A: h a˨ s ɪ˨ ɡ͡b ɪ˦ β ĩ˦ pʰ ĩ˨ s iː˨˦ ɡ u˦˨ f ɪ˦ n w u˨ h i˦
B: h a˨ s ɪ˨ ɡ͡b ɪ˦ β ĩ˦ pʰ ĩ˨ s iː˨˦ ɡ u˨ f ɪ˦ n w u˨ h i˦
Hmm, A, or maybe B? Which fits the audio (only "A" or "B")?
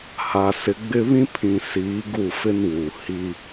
A